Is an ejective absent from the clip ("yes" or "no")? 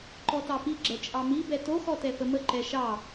no